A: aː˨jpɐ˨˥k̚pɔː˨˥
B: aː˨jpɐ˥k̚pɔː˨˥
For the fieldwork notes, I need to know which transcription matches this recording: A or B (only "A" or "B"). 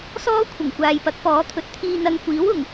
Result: A